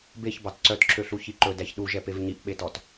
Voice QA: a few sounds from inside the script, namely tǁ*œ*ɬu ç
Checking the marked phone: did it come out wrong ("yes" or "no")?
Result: yes